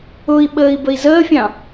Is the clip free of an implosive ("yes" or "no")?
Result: no